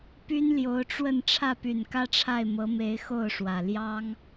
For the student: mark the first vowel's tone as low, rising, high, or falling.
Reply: high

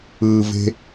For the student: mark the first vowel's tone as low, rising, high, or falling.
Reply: low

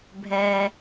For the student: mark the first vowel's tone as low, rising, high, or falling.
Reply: low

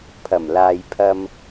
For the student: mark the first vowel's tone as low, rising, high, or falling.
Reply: low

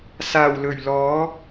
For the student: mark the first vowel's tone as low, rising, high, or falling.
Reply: low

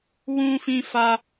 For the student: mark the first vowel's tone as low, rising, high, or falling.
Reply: high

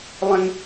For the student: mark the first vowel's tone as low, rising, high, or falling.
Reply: high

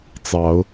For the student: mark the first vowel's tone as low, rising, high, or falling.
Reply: rising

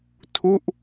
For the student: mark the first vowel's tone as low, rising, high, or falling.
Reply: falling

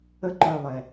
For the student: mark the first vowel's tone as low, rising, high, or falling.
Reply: high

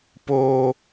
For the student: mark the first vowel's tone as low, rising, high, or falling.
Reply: high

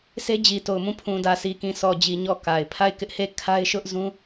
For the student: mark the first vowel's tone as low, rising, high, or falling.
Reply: high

